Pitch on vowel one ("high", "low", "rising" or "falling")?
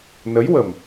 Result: rising